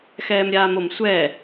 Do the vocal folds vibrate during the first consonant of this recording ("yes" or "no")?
no